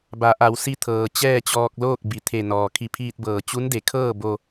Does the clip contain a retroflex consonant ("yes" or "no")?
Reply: no